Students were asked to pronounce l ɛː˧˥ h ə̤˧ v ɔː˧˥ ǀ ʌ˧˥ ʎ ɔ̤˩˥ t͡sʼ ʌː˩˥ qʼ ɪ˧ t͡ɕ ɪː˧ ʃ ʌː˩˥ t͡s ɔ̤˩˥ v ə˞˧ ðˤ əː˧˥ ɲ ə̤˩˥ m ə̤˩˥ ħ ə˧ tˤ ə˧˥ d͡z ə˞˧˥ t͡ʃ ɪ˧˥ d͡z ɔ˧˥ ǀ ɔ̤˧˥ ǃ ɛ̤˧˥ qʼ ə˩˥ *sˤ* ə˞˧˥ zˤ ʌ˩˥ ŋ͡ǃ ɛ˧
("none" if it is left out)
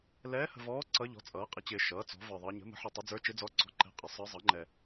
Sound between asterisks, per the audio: sˤ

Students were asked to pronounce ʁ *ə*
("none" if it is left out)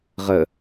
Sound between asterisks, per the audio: ə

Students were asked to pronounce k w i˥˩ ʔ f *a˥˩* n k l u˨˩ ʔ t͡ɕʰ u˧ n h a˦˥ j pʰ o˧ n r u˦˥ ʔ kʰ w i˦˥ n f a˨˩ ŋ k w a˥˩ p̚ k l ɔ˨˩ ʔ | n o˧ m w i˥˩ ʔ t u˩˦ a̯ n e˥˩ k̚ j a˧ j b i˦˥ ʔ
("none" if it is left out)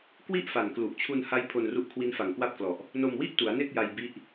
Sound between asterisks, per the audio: a˨˩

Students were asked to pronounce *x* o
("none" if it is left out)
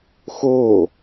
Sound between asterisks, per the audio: x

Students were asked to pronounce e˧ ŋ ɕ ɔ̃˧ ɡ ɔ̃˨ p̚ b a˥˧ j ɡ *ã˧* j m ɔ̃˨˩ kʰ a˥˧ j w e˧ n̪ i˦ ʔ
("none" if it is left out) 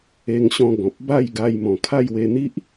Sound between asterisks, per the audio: a˧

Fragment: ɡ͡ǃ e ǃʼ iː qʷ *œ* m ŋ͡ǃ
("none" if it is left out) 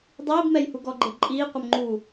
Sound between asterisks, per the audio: œ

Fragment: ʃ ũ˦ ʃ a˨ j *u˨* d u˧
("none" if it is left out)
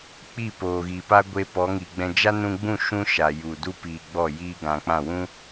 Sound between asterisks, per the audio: u˨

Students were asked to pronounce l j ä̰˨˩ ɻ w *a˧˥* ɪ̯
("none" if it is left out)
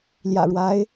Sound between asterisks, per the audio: a˧˥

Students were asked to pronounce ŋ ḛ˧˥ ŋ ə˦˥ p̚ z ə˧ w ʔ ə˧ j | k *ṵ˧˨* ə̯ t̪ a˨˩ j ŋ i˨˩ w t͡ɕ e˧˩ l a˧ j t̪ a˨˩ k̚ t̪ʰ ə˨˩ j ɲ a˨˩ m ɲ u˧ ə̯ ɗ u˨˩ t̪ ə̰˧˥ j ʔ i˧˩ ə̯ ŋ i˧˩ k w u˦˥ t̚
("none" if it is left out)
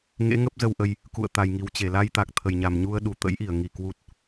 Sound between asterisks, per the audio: ṵ˧˨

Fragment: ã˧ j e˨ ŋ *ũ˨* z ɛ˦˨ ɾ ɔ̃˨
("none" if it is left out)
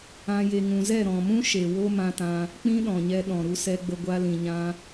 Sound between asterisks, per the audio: ũ˨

